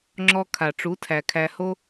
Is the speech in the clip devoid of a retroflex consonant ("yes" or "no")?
no